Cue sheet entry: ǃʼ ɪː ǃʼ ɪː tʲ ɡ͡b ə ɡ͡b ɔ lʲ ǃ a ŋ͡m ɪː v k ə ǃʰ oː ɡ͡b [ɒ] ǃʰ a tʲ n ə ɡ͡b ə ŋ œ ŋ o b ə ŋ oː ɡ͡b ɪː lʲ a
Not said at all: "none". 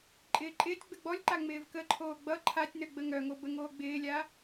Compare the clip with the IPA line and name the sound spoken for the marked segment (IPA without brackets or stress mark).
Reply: ʌ